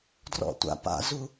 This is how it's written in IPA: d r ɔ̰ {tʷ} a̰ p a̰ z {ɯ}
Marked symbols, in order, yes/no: yes, no

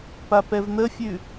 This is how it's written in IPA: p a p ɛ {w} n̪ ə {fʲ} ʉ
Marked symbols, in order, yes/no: no, yes

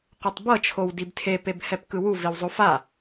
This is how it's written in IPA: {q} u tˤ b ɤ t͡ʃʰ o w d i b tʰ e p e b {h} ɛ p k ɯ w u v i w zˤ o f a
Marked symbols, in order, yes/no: yes, yes

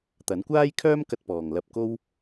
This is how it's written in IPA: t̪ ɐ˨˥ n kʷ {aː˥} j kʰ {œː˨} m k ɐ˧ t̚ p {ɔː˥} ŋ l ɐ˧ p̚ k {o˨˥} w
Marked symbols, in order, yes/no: yes, no, no, no

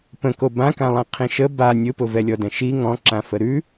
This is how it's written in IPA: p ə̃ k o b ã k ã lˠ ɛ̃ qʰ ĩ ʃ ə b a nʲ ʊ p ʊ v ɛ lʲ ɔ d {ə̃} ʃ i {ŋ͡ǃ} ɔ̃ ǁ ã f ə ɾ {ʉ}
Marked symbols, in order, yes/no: no, no, yes

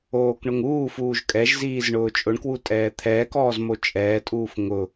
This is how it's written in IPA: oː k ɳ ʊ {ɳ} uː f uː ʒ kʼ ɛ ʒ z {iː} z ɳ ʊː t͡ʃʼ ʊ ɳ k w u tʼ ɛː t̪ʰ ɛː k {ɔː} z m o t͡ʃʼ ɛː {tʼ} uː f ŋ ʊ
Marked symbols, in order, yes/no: no, yes, yes, yes

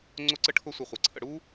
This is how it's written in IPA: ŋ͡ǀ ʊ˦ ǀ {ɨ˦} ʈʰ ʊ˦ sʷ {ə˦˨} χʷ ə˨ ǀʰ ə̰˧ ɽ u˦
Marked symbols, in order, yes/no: no, no

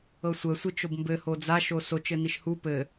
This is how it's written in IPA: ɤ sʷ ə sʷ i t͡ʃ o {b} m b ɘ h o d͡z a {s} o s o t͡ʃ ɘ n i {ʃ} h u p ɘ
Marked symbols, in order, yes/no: yes, no, yes

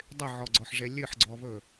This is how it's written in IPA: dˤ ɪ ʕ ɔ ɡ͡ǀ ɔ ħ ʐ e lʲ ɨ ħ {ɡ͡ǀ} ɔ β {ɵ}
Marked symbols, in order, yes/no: yes, yes

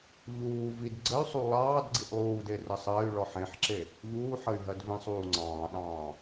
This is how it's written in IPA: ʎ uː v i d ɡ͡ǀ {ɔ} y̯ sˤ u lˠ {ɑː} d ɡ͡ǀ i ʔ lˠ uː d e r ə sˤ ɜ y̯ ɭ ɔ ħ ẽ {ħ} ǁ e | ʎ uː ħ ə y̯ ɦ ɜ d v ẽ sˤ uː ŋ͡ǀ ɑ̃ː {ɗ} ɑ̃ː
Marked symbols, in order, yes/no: no, yes, yes, yes

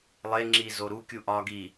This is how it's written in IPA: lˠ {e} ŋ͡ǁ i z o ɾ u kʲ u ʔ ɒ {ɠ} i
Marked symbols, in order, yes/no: yes, no

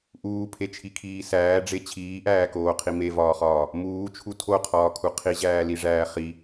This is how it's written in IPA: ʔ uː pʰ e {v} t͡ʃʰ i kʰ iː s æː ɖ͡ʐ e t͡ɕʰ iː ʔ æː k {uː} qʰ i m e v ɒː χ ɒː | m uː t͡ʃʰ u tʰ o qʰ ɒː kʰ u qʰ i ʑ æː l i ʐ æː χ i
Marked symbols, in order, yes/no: no, no

